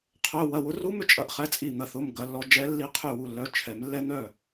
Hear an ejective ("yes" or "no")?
yes